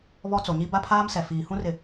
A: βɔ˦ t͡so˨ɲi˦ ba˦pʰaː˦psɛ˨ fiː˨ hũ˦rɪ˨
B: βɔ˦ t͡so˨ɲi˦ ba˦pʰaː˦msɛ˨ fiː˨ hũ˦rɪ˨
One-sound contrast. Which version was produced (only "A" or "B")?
B